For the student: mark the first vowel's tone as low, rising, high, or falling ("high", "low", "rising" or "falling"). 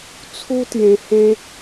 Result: high